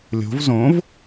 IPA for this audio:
lʲ o̤ v z õ v

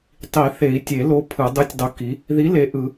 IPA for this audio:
tˤ i˨˩˦ θ e˨˩˦ i̯ tʲ e˨˩˦ l o˨˥ pʰ ɯ˨˩˦ dˤ ɯ˨˥ tʲ dˤ o˨˥ k i˨˥ | ð i˨˥ l e˨˥ ʔ ɯ˨˩˦

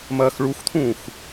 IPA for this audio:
m ɐː x ɭ u x t̪ʰ ũː x

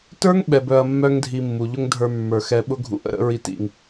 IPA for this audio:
t ə˞˦ ŋ ɓ ɛ˨ b œ˧ ɐ̯ mː œ˦ ŋ dʱ i˧ mː u˨ ʎ ʊ˦ ŋ dʱ ə˞˧ mː ə˞˨ x ɛ˧ ɓ ʊ˦ ɡʱ ṵ˧ ʔ ə̰˧ ɾ ə̰˦ ɹ i˧ t ḭ˨ ŋ

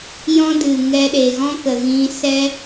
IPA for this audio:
j ɔ̃˦ d ɨ˨ ŋ ɛ˦ ɗ e˨ ɣ ɔ̃˦ k ə˨ ɣ ĩ˧ s ɛ˦

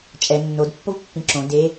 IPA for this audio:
t͡ʃʼ ɛ nː o d pː o v pː ĩ ǁ õ d e

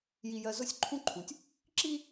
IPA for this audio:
j i˨ j ɜ˨ z ʊ˦ sʲ ǃʰ ũ˦ ǃʰ ũ˨ tʲ | ǁ i˦

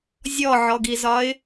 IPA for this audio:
zʲ ɔ ʕ ɔ ɡ i z ɒ ɪ̯

